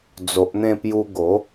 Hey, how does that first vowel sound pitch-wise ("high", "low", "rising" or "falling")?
low